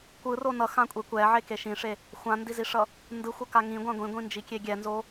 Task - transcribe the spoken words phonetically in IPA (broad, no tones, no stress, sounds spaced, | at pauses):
kʷ ɯ r o n ʌ x ã kʷʼ e kʷ ɛ ʕ e k e ʃ ĩ ʂ e | xʷ ã n d i z i ʂ ʌ | n d ɯ xʷ ʌ k a ŋ ĩ ɡʷ ã ɡʷ ĩ ɡʷ ĩ n d͡ʒ i kʲ e ɡʲ ɛ n z o